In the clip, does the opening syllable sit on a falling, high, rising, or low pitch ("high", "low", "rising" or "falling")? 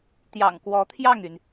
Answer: low